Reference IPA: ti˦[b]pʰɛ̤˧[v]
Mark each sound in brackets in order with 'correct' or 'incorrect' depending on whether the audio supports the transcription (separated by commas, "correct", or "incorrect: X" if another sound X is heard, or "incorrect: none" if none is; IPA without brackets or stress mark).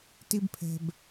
correct, incorrect: b